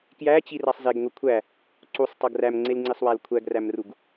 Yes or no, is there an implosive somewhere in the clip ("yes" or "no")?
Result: no